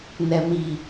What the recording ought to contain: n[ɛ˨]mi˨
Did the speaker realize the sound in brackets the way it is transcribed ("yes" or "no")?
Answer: yes